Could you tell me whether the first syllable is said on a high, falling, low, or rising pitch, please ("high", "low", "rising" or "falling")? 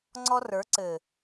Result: high